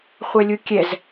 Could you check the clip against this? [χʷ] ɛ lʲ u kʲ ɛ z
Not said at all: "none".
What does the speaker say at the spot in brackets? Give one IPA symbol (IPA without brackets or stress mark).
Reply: χʷ